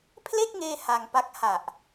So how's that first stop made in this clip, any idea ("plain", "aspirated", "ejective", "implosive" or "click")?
aspirated